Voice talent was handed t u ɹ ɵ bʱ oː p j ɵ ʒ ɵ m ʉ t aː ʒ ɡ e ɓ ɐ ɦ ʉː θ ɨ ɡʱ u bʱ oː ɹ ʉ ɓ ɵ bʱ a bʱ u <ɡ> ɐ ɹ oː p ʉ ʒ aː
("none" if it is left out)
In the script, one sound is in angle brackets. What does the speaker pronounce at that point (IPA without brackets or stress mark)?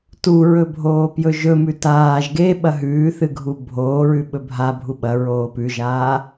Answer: ɓ